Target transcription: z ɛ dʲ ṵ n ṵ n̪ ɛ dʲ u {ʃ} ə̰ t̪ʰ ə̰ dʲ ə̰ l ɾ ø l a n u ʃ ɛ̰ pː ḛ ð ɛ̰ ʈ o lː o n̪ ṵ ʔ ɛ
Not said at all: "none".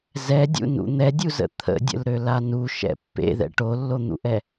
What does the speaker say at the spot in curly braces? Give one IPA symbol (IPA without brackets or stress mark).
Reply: z